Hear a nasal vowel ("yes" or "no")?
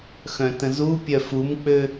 yes